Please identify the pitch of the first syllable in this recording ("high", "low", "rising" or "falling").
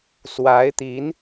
rising